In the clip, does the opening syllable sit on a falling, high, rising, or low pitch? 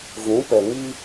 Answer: rising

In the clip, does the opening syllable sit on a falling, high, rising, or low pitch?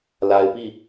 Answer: low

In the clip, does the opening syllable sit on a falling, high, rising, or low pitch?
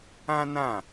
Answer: high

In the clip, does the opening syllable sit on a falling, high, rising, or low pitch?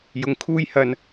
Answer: rising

